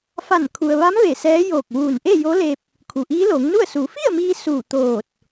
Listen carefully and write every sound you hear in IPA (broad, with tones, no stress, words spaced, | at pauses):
fa˧˩nkʰu˩ə̯ʋa˧˥m ʋe˧˩sɛː˧˥ joː˧˩k̚ʋuː˧˩n ʔe˥˨jo˧˥le˧p̚ | kʰu˩ʔiː˧˥loː˩˧ŋnu˥˨ə̯ su˩˧ fi˥˨ə̯miː˧ suː˧˩t̪oː˧˩t̚